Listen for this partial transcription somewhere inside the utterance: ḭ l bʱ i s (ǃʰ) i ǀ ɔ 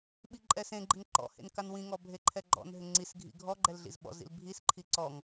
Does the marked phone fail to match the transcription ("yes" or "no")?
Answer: no